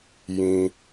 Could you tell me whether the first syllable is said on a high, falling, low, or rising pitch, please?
low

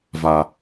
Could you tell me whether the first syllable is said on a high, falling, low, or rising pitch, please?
low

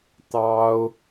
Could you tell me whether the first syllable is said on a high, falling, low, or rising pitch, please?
high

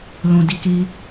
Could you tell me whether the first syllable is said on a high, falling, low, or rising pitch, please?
low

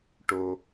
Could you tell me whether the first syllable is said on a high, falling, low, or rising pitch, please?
high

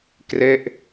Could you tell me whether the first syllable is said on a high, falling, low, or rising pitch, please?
falling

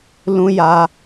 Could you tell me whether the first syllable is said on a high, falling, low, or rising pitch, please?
high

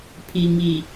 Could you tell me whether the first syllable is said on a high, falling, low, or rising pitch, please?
low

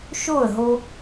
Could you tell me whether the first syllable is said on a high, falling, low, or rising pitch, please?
falling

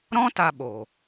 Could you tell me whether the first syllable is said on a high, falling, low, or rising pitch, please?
high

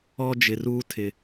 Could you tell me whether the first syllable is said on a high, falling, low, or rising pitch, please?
high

